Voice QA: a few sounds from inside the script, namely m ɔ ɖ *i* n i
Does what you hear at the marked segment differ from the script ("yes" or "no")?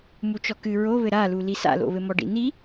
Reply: yes